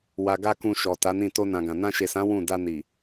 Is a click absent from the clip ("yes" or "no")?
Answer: yes